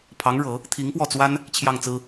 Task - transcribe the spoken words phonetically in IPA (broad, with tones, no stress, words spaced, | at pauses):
pʰɑ˧˥ŋɻɤ˨˩˦ | t̪ʰi˧˥ŋpwɔ˥˩t͡swa˥n | t͡ɕʰjɑ˥˩ŋt͡sɹ̩˥